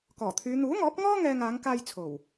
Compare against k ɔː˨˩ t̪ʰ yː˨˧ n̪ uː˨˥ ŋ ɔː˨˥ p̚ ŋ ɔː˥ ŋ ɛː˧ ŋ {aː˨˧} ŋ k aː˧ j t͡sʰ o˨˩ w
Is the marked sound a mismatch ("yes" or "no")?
no